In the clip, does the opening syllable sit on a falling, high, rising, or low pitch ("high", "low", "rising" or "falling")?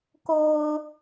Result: low